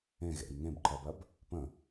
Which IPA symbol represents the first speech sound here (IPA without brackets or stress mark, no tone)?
ẽ